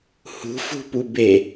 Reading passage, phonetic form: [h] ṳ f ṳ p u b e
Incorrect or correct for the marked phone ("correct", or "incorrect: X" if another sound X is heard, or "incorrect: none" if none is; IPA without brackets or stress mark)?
correct